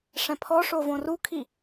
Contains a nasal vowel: yes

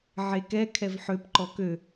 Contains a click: yes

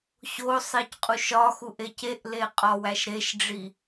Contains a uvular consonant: yes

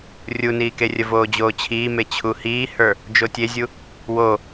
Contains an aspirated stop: yes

